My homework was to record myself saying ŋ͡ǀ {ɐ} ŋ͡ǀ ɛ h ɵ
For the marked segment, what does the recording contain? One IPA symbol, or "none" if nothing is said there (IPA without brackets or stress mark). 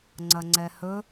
ɐ